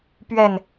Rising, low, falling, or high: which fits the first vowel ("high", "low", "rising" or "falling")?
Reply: low